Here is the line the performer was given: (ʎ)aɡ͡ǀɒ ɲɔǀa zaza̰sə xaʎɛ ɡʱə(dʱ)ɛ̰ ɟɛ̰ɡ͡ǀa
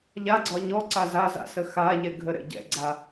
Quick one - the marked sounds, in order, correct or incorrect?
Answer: correct, incorrect: ɾ

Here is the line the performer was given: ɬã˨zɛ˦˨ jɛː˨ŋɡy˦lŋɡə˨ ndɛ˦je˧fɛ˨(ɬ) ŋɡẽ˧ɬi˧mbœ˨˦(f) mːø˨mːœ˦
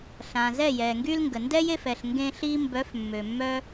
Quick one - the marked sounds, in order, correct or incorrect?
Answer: correct, correct

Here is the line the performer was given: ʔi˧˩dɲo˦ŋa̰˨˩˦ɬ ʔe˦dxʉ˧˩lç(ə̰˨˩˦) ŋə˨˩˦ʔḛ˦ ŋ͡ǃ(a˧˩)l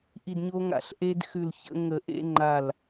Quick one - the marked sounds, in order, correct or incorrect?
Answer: incorrect: ə̰˦, correct

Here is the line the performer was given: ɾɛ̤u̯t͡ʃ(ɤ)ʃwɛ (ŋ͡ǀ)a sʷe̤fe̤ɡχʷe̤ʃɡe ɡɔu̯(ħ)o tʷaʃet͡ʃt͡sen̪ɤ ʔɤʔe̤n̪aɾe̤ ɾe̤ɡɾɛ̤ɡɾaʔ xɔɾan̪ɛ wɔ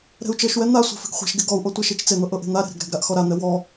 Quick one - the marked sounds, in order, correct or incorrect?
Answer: correct, incorrect: n̪, incorrect: ʔ

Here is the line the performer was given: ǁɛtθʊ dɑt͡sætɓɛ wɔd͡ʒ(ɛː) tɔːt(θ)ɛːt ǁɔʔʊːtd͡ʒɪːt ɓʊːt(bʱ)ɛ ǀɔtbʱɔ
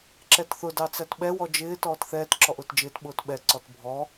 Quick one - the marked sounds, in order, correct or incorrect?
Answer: incorrect: ɪː, correct, incorrect: ɓ

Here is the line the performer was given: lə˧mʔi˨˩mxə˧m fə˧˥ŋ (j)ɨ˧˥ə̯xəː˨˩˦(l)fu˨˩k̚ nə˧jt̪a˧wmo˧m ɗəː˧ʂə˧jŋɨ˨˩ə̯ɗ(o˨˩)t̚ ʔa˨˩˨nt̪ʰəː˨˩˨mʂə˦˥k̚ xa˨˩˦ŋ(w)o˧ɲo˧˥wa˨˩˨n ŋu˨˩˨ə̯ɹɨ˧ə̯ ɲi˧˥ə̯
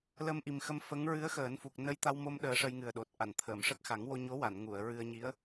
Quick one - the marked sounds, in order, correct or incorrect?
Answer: incorrect: ɹ, incorrect: n, correct, correct

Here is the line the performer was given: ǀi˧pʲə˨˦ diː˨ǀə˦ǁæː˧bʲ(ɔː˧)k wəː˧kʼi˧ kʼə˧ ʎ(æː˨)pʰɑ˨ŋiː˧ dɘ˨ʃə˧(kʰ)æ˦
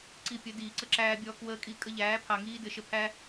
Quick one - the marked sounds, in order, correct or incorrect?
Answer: correct, incorrect: æː˨˦, incorrect: pʰ

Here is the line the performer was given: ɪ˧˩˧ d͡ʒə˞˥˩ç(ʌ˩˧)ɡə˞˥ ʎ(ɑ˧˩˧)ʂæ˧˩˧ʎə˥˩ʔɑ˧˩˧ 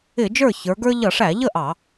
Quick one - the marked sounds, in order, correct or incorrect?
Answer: incorrect: ə˞˩˧, incorrect: ʌ˧˩˧

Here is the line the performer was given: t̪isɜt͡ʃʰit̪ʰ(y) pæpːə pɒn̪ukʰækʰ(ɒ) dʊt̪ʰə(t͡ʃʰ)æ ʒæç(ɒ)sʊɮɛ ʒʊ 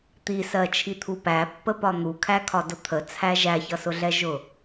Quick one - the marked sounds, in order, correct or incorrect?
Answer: incorrect: u, correct, incorrect: t͡sʰ, incorrect: ʌ

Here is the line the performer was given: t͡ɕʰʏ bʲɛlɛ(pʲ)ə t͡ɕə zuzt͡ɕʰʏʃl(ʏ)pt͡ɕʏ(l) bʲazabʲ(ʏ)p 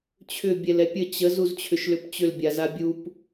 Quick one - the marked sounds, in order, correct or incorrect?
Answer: correct, correct, correct, incorrect: u

